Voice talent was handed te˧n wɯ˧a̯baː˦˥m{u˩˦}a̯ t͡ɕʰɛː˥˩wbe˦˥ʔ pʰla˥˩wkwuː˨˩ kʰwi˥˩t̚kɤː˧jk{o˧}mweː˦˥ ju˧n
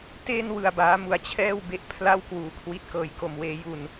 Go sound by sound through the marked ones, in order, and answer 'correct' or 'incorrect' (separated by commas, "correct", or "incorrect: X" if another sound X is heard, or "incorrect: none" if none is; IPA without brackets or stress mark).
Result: incorrect: u˧, correct